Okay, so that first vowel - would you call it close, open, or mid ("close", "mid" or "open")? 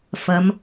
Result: open